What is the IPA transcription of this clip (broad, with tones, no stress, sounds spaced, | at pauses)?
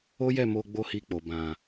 o˦ j ɛ˦˨ m o˧ ɡ͡b o˦ h i˧ k͡p o˨ b ã˨